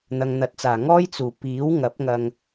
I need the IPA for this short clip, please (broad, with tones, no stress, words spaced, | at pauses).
n̪ɐ˨ŋn̪ɐ˨˥t̚t͡saː˨˩ ŋɔː˥jt͡suː˨˩ piː˨˥wŋɐ˨˥p̚ ŋɐ˧ŋ